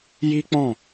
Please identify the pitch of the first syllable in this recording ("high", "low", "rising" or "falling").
high